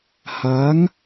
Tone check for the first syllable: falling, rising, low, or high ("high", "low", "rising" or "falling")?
rising